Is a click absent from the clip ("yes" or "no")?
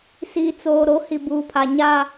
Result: yes